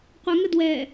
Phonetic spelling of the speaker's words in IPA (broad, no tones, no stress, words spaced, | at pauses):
qʷəŋə dwɛ